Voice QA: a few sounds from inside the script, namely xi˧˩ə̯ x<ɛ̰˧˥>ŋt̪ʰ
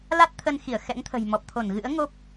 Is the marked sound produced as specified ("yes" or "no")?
yes